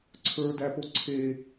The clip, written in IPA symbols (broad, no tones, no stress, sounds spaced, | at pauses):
ǀʰ ə˞ d æ p o ǀʰ e